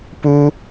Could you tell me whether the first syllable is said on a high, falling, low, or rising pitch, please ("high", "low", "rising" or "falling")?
high